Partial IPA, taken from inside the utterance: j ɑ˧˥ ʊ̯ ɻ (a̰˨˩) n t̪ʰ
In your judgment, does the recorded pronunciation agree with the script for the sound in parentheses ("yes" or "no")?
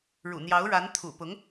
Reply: no